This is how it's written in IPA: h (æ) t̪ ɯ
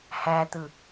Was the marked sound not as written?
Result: no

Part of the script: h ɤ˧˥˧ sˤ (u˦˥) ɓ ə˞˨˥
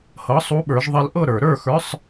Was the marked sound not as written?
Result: no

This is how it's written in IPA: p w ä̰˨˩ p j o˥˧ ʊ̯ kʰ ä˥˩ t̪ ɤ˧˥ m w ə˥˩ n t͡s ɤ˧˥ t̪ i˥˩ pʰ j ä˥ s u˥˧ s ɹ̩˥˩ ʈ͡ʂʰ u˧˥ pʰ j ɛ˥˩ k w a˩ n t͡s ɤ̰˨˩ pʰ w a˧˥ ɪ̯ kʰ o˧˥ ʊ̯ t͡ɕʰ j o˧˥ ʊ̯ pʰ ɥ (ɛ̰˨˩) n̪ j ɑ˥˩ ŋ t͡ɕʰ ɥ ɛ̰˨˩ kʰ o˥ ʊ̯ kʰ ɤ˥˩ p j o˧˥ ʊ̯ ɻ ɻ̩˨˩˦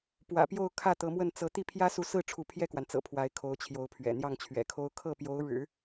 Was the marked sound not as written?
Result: no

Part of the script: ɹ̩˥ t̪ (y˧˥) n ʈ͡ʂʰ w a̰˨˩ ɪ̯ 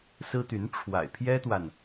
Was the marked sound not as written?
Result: no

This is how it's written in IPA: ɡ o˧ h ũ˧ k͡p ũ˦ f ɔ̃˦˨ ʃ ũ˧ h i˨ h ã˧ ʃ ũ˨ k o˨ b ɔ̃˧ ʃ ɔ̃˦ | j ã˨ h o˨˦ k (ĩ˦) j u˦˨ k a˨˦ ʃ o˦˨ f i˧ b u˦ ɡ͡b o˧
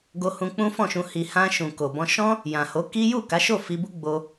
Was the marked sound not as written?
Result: yes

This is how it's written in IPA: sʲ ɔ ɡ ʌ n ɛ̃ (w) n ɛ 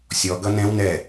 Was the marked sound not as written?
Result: no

